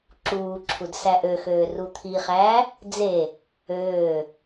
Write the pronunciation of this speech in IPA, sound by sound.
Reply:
ǁuːǁʰud sæʔøxøː rut̪ʰiχæː | d͡ze | øː

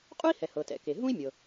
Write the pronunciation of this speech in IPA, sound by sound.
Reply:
qʼu˥i̯hɛ˩hɤ˩ tɛ̰˩ ke˩ɦũ˥i̯mʲɤ˩

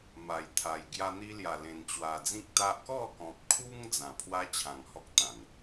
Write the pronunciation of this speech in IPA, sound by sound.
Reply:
ma˨˩jt̪ʰa˨˩j ɡja˧n̪i˧ lja˨˩lẽ˨˩nt͡ɕwa˨˩d͡zĩ˦k̚ t̪a˦ʔ kɔ˥˧kɔ̃˨p̚kʰu˦ŋ d͡zã˨˩pʰwa˦ t͡ɕʰã˨˩ŋhɔ˦k̚t̪ã˨˩n

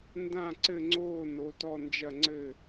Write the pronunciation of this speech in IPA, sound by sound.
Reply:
ndã˥˨ ǀɘ˥˨ŋ͡ǀoː˥˨ no˨˥tɔ˥˨ nd͡ʒɐ˥˨ŋ͡ǀɘ˥˨

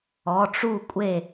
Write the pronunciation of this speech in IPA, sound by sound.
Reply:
ɔ˩˧˩ʈ͡ʂu˥˩kʷʼe˥˩

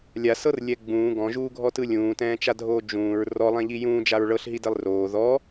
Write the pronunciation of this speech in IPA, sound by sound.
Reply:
lʲasɤrlʲɛ ɡ͡bũː ɡɔ̃ʒuːɡʱɔtɯ lʲũːtɛ̃ːt͡ʃadʱoː d͡ʒũːɹ rɔlˠɛ̃ʎi jũːd͡ʒaɹ ɭɤɬɦidelˠ roː ðɔ

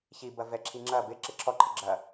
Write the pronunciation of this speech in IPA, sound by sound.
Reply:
çibɐ vɛǁʰiŋ͡ǁɐ bɪ ǁɪǁʰɔǃʰɪ ɡ͡ǁɐ

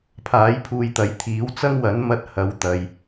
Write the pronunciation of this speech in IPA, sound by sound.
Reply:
pʰaː˨˥jpʰuː˧jt̪ɐ˨˧j t̪ʰiː˨˥w t͡sɐ˥ŋwɐ˨˥n mɐ˥t̚hɐ˨˧w t̪ɐ˨j

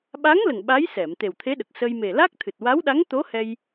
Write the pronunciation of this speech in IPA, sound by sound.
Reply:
ɓa˧˥ŋlə˨˩ŋ ɓa˧˥jsɛ˨˩˨m t̪e˨˩wt̪ʰe˧˥ɗə˨˩k̚səː˧j me˨˩la˦˥k̚t̪ʰɨ˨˩t̚ wa˧˥wɗa˧˥ŋt̪o˧˥ hɛ˧j

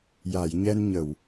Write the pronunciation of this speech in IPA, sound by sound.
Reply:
ja˨˩˨jɲɛ˧nɲə˨˩˨w

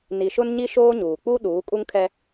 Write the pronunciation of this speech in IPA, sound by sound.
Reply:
ni˨ʃʊ˦nɲi˦ ʃoː˦ɲuː˨ k͡pu˦ɗuː˨˦ kʼu˦ŋkʰɛ˦

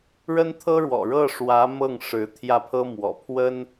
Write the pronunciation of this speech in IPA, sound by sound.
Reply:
ɻə˥nt̪ʰɤ˥ɻwɔ̰˨˩ ɻɤ˥˩ʂwä˧˥ mɤ˥˩ŋʂɻ̩˧˥ t̪ʰjä˥˩pʰɤ˥mwɔ̰˨˩ pʰwə˥n

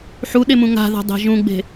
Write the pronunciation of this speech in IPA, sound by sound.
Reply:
ħuɗemũ ŋa̤ða̤dˤe̤ ʒũɡ͡be̤

